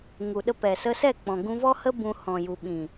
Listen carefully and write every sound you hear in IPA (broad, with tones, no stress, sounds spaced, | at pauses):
ŋ u˨ ɗ ə˧ p ɛ˨ s ə˧ s ɛ˦˨ k͡p ɔ̃˨ ɡ ũ˧ v ɔ˦ h ə˦ b ũ˧ h ɔ̃˨ j u˨ ɓ ĩ˨